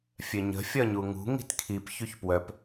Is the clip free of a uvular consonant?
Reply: yes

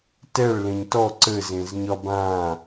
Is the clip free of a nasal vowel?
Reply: no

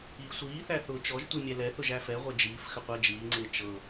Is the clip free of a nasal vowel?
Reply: yes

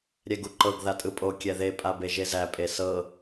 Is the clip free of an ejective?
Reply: no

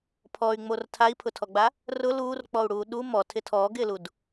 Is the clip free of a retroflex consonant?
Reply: no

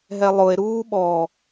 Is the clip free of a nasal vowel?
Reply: yes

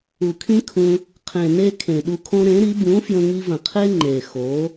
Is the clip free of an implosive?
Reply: no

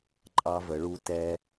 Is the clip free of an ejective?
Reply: no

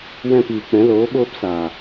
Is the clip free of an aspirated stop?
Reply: yes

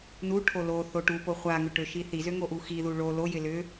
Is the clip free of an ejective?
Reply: yes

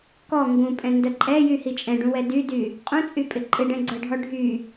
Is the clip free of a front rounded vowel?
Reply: no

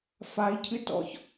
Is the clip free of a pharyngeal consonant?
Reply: yes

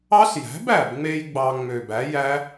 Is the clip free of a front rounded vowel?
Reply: no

